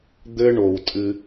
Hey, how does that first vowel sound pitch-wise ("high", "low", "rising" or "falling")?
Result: high